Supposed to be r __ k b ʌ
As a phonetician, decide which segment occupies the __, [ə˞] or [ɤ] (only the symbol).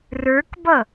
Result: ə˞